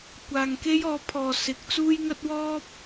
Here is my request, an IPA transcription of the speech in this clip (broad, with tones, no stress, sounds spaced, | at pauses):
kʷ aː˨ ŋ k e˥ j ɔː˨˥ pʰ ɔː˨ s ɪ˨˥ k̚ t͡s uː˥ j ŋ ɐ˥ t̚ w ɔː˥ p̚